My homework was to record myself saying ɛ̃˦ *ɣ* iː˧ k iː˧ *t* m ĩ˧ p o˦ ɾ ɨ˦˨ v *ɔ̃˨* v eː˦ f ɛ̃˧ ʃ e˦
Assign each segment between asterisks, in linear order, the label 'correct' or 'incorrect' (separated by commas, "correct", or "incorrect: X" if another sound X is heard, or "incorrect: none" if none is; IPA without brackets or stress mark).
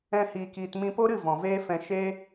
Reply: incorrect: h, correct, correct